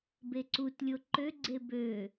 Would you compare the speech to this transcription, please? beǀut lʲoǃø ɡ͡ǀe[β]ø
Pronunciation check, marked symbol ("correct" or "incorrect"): incorrect